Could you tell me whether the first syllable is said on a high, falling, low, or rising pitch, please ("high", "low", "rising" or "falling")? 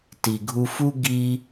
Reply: low